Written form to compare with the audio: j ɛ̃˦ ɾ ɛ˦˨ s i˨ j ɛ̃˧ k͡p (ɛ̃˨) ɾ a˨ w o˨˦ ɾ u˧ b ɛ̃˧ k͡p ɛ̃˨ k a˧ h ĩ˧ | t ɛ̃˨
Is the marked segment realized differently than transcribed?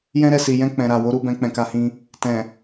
no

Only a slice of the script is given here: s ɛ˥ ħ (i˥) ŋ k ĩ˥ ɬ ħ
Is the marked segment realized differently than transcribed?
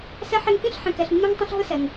yes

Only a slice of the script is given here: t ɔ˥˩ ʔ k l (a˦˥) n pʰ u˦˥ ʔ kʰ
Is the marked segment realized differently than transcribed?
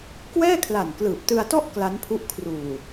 no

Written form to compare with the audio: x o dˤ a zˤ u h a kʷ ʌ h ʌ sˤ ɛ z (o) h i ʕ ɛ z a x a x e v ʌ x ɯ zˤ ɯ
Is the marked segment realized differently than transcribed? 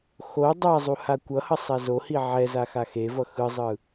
no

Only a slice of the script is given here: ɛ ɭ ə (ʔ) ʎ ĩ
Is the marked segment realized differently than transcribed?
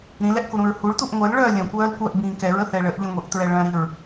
no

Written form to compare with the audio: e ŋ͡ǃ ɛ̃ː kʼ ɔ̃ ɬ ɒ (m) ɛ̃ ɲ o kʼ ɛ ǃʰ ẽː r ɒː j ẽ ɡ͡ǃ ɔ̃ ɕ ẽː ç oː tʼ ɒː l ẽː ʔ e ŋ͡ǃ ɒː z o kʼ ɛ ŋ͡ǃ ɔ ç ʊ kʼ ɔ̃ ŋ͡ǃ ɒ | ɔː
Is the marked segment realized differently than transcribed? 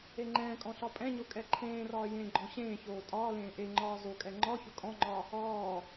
yes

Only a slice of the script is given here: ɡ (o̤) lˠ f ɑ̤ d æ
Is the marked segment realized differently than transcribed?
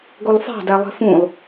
yes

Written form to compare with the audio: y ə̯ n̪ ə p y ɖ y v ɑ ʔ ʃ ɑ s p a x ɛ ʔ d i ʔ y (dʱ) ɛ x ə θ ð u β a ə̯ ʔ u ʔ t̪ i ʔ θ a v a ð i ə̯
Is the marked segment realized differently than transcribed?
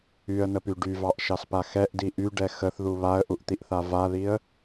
yes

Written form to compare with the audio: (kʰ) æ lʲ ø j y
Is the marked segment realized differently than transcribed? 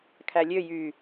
no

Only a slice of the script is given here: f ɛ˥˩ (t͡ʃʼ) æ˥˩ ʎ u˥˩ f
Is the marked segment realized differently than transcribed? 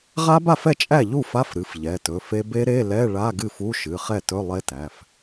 no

